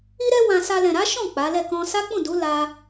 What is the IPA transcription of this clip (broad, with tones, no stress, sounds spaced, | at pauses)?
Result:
i˦ ɾ ɛ˦ w ã˧ s a˧ l ɛ̃˨ ɾ a˨˦ ʃ ɔ̃˦˨ k͡p a˨˦ l ɛ˦˨ k ɔ̃˧ s a˦ k͡p ũ˦˨ d u˨˦ l a˦